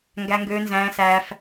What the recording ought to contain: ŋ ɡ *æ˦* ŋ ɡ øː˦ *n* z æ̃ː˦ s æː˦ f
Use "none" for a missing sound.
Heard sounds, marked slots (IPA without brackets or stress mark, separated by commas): æ˦, n